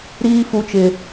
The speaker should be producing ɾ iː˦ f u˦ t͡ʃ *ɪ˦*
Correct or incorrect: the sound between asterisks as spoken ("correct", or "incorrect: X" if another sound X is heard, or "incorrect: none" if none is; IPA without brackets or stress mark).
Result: correct